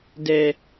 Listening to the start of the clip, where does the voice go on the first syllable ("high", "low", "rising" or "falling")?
low